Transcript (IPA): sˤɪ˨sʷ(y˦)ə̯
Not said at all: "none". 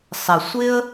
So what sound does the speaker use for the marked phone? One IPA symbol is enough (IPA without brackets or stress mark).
ɪ˦